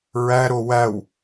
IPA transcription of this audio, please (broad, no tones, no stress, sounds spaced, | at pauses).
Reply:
ɹ æ ɾ o w æ w